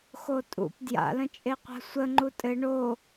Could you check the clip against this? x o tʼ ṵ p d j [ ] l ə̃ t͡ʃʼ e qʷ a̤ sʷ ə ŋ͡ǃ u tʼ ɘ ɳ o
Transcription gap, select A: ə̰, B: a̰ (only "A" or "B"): B